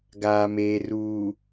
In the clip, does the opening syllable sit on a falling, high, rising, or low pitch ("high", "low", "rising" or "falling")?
low